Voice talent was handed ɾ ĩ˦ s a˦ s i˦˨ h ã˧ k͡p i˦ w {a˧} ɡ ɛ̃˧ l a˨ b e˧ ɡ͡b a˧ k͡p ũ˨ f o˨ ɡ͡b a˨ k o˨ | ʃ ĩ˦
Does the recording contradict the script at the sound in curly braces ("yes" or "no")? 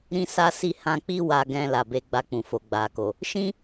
no